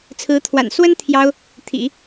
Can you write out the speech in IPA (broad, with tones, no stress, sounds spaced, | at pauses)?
t͡sʰ ɹ̩˧˥ t̪ʰ w a̰˨˩ n s w ə˥ n t̪ʰ j ɑ˥ ʊ̯ | t̪ʰ ḭ˨˩˦